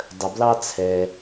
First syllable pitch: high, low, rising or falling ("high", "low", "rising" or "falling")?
low